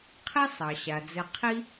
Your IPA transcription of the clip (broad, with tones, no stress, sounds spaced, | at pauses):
qʰ i˥ sˤ ɑ˩ ɕ a˩ d͡z ɘ˨ qʰ i˥